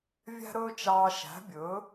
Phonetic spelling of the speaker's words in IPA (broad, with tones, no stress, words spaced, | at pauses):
vʲæ̤˥ɾɵː˥t͡ʃɑː˧ ʃæ̤˩˥bʲɵ˩˥